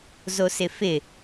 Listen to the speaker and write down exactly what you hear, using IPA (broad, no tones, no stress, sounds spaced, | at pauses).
z o s ɪ f ɪ